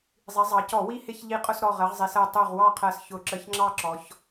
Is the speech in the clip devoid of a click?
no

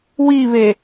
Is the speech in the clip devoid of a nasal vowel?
yes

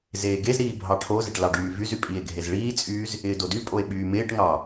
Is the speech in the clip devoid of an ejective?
no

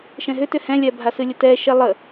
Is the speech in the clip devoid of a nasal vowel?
no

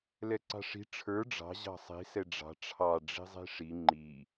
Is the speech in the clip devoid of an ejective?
yes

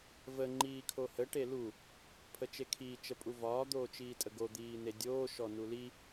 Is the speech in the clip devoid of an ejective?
no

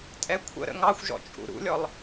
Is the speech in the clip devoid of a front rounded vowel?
yes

